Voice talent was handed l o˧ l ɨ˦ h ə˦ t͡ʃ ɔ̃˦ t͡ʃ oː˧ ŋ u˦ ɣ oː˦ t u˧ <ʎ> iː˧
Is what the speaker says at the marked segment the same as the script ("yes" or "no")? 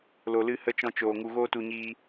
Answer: no